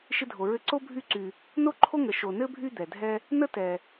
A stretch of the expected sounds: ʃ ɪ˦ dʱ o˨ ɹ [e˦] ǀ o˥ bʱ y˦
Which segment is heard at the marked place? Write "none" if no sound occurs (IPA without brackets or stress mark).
ɘ˦